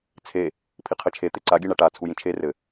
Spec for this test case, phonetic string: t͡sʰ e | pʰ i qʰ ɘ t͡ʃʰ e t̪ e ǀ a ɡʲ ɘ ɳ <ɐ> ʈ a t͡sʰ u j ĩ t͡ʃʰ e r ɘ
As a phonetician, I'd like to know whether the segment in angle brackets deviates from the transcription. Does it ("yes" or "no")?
yes